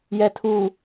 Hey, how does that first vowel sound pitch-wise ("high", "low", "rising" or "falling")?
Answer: low